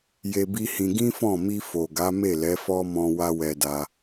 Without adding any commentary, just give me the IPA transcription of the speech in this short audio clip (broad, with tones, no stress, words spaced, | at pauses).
je˧bi˦hĩ˧ ɡĩ˦fɔ̃˦˨ mi˧fo˨ɡa˨˦ me˦˨lɛ˨˦fɔ˦mɔ̃˧ wa˦wɛ˧da˧